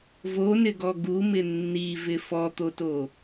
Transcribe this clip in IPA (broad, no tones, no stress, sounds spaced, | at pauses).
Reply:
v o n ɪ ɡ ɔ ɡ u m ɪ nː i v ɪ f ɔ t̪ o t o